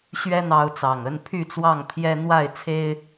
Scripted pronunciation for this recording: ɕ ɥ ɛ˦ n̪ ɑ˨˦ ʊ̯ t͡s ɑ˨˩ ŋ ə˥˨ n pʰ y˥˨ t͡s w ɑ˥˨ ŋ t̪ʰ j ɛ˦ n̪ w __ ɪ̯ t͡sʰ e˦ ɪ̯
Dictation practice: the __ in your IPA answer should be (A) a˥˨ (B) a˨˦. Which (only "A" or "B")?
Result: A